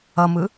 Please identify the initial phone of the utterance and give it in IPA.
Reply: ʌ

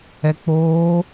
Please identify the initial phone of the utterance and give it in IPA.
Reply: ɛ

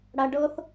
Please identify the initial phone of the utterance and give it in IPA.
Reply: ɽ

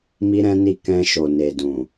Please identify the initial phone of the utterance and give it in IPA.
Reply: m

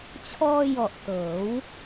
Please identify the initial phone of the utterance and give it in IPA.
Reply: t͡ɕʰ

